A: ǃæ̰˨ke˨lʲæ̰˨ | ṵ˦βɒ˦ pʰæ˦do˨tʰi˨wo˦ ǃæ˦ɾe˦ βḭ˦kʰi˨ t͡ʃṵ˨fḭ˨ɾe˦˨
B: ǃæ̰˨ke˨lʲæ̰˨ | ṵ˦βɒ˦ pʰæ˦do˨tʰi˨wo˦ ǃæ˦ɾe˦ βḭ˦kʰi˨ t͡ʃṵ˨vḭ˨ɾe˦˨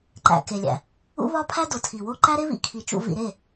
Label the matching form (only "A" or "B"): B